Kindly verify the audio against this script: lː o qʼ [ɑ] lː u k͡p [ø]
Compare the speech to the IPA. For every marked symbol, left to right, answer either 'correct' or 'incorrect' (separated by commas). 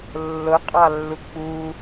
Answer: correct, incorrect